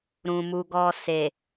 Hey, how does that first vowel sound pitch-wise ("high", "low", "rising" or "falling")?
low